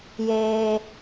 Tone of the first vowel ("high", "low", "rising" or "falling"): high